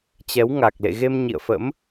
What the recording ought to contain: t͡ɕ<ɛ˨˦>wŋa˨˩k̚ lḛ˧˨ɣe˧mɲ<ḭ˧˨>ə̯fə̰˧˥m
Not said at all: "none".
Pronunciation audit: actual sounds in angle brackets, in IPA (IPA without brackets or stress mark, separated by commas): ɛ˨˦, ḭ˧˨